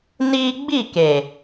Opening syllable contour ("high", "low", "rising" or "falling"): high